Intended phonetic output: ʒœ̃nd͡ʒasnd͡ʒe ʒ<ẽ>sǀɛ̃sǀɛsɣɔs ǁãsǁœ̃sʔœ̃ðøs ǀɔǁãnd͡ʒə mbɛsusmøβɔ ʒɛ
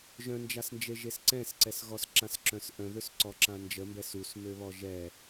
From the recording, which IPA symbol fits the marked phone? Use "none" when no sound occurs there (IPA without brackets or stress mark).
e